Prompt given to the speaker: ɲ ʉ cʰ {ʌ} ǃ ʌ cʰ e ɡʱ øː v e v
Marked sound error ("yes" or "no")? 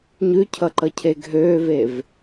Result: no